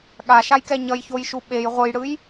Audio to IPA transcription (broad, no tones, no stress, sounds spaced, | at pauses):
ɠ a ʃ a j k ɛ ɲ ʌ j ç o j ʃ u ɓ e j ʁʷ ɯ j ɽ ɯ j